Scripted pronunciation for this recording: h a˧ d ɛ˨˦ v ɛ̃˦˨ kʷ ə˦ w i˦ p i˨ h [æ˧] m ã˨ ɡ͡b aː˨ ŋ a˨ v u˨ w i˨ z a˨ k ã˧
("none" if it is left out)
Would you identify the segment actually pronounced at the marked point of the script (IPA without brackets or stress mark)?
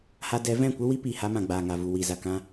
a˧